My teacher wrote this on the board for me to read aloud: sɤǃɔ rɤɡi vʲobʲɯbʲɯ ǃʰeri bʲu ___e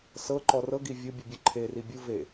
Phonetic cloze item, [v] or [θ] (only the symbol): v